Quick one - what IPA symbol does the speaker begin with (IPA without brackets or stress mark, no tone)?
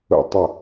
ə̰